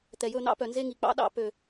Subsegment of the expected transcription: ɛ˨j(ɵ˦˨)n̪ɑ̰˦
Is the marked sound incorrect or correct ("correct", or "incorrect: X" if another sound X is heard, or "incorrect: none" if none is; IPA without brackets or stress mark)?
correct